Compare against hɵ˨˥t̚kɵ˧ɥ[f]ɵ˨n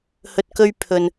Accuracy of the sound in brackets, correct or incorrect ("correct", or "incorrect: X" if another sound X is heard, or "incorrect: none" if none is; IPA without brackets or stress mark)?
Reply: incorrect: pʰ